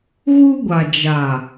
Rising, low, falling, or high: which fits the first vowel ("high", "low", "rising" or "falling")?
high